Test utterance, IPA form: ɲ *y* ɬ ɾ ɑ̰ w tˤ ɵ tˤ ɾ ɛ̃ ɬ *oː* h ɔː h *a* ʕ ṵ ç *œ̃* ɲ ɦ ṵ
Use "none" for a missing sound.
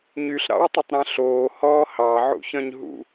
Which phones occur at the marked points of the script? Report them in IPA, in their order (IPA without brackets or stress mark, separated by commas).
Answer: y, oː, ɑ, œ̃